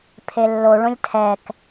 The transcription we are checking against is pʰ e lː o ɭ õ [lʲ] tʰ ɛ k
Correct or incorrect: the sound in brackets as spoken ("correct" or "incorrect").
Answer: correct